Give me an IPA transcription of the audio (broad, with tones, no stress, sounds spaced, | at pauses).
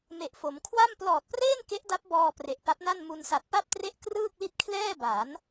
m e˨˩ ʔ f o˩˦ m kʰ w a˥˩ m p l ɔː˨˩ t̚ p r eː˥˩ n k e˦˥ ʔ d a˦˥ p̚ b ɔː˧ p r e˨˩ ʔ p a˦˥ p̚ n a˥˩ n m u˧ n s a˨˩ t̚ p a˥˩ p̚ t r e˥˩ ʔ k r ɯː˥˩ k̚ l i˥˩ t̚ kʰ l ɛː˥˩ b a˩˦ n